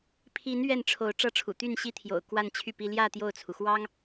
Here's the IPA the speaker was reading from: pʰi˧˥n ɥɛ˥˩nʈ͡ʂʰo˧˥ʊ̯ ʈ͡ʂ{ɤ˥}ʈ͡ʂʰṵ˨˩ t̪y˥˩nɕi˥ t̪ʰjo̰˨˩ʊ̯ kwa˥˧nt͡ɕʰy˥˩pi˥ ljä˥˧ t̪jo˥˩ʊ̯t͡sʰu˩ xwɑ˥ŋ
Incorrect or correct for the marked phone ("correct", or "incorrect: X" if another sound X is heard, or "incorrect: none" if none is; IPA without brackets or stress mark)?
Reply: correct